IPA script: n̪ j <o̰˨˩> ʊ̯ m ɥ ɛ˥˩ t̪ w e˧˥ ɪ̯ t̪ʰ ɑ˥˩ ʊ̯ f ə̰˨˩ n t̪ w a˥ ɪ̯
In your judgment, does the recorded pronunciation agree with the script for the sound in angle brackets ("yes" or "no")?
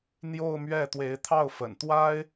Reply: no